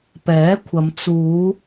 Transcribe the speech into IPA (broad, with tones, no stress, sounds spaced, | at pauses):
p ɛː˨˥ kʷʰ ɐ˨˧ m t͡s uː˨˧